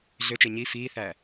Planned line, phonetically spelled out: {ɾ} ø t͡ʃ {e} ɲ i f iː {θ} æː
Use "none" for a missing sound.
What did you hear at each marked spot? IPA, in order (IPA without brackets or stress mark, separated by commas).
ɮ, e, θ